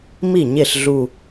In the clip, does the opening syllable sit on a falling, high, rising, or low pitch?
falling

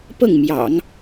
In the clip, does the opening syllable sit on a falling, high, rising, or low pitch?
falling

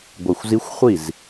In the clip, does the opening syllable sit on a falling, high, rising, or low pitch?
low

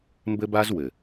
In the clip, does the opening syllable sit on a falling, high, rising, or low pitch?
high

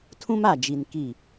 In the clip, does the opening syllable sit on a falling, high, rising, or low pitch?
high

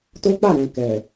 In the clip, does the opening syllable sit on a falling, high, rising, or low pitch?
high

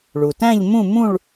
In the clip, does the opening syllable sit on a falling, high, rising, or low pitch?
low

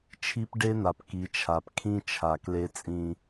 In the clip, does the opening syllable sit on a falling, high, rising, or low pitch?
high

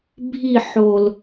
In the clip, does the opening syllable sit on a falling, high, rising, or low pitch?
falling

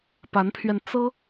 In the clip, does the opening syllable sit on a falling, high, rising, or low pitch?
rising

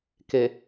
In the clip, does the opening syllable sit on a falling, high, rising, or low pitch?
low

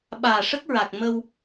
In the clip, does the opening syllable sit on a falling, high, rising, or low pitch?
low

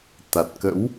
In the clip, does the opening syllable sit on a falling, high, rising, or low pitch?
low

